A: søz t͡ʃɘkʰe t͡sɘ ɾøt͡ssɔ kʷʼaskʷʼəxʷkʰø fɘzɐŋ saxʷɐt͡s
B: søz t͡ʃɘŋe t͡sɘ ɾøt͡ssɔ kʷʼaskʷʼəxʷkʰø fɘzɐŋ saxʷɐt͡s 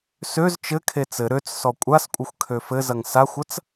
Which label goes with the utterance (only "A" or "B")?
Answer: A